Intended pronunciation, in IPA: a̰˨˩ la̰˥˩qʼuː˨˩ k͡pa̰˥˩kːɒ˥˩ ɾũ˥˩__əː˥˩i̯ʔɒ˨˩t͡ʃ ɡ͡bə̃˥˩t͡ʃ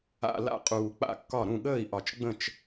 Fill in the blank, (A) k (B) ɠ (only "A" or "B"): B